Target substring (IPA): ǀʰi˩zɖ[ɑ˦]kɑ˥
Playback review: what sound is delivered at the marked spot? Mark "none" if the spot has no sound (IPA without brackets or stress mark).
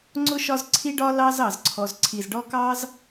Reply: ɔ˦